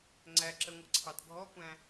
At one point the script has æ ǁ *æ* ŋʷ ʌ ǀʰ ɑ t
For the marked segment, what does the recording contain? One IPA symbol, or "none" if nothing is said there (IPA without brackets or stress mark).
ə